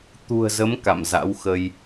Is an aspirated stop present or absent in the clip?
absent